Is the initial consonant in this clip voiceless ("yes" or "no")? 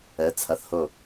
yes